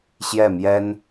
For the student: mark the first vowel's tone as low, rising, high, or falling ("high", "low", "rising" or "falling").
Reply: falling